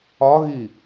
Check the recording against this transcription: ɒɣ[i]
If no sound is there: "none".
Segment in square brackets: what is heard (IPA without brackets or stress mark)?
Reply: i